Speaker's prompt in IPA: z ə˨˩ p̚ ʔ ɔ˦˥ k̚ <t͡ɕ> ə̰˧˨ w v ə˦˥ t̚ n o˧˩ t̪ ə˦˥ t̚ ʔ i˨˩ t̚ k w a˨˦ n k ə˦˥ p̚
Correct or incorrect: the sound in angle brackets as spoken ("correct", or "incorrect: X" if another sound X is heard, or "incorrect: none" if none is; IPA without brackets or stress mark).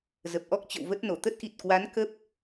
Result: correct